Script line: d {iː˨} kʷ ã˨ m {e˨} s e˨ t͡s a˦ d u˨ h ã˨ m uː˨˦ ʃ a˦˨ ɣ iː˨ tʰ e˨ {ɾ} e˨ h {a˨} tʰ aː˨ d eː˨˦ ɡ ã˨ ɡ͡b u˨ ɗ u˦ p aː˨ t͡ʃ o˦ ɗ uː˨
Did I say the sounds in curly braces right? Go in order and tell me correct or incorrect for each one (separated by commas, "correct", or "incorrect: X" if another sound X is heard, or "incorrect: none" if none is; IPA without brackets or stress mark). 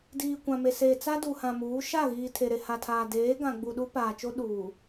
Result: correct, correct, correct, correct